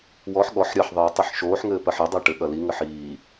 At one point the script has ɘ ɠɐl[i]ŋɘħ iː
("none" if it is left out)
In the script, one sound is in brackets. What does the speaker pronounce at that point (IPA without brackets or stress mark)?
i